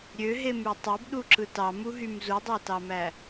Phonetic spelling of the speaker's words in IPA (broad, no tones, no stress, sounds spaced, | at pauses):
ɾʲ ø ɦ e m y tˤ o b ɗ u ǁ ɯ t ɑ m u ɦ y m z u dˤ æ t ɑ m æ